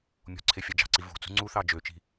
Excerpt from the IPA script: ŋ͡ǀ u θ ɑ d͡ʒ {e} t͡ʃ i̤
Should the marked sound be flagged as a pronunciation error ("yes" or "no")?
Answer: yes